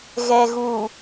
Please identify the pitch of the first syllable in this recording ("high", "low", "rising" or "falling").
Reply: low